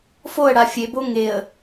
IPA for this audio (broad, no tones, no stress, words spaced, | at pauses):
foə̯ɽa fʲebo ŋeə̯